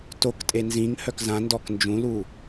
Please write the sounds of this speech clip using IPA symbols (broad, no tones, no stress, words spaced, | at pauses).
toktʼe nzĩŋ hœkzãndɔk nd͡ʒũlu